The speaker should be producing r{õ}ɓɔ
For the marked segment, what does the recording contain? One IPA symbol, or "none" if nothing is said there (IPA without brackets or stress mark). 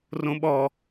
õ